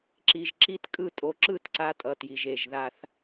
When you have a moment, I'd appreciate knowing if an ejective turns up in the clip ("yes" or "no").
yes